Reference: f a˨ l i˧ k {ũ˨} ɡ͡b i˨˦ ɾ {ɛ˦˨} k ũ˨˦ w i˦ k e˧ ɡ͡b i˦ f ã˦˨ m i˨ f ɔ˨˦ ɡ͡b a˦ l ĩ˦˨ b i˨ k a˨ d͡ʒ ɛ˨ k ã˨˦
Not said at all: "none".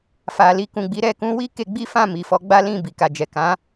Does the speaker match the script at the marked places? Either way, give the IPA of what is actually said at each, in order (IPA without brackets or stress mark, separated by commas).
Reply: ũ˨, ɛ˦˨